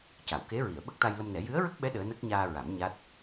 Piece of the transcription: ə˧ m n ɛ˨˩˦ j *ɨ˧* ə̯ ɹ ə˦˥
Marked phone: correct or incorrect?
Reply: incorrect